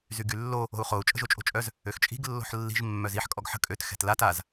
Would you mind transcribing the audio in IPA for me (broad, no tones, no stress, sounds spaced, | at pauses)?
z y ɡ y lː o | o̤ u̯ χ o u̯ t͡ʃʼ ə̤ ʒ o t͡ʃʼ o̤ t͡ʃʼ œ z | ø x t͡ʃʼ i̤ ɡ lː o̤ ħ lː i̤ ʒ mː œ z i ħ kʼ ɔ ɡ ħ ə̤ kʼ ø t x ɛ̤ t l a t a z